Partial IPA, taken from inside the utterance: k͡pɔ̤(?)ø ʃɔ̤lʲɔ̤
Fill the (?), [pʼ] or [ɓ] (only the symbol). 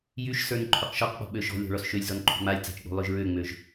ɓ